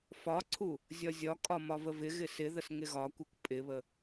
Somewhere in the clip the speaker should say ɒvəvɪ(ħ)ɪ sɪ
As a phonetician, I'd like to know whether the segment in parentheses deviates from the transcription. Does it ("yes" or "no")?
yes